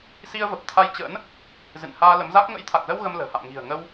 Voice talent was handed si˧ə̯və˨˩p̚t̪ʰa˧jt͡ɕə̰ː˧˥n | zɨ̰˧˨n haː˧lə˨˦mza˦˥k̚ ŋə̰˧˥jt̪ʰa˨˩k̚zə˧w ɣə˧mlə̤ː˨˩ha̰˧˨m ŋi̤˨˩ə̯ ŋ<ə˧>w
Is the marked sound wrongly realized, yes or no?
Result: no